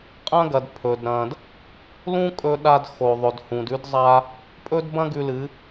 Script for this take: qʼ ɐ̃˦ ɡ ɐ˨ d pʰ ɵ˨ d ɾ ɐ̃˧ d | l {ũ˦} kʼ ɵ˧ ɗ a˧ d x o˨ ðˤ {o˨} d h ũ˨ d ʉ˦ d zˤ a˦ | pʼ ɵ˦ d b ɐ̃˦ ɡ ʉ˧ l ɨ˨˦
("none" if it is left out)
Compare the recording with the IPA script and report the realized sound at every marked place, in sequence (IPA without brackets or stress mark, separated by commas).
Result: ũ˦, ɵ˨